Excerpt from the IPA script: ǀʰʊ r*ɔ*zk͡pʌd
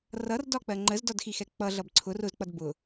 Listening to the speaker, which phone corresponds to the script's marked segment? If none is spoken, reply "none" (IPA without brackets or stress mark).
ʊ